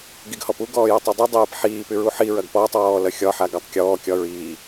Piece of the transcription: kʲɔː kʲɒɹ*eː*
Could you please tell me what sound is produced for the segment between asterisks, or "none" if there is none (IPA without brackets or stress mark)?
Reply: iː